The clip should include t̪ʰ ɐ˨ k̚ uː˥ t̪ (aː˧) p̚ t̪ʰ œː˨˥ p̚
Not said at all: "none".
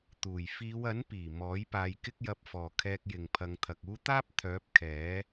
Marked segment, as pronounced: aː˥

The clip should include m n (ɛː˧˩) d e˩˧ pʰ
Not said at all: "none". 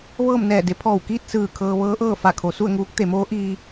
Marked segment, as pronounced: ɛː˧˩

